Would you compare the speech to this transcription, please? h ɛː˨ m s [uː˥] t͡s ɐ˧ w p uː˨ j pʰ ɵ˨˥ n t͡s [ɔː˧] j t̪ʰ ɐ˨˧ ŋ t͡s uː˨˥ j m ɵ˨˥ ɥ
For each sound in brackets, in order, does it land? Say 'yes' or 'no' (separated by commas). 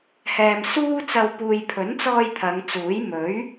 yes, yes